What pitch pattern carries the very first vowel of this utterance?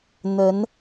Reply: rising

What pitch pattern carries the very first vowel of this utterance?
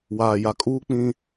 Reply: low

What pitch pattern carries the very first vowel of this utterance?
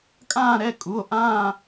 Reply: falling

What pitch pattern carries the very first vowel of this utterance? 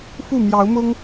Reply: falling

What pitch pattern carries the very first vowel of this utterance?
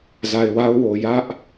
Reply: low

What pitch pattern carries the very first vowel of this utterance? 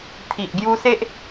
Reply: low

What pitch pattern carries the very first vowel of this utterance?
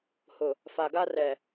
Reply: low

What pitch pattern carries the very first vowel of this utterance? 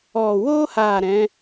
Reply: low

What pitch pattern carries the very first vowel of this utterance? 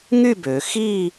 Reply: falling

